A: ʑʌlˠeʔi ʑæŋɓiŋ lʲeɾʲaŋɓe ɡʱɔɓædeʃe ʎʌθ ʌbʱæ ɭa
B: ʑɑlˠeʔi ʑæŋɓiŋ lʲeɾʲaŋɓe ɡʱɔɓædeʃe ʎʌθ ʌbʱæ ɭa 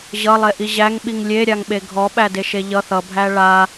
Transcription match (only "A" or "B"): A